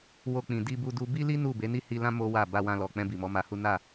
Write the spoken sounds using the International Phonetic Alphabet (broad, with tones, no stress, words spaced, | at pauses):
wo˧k͡pĩ˨ di˧ bu˦du˦ bi˦li˦ nu˦˨be˨˦ ni˦˨hi˧lã˦ mo˦wa˦˨ ba˧wã˧lɔ˨k͡pɛ̃˧ bi˨mɔ˨˦ma˧hu˦ na˦˨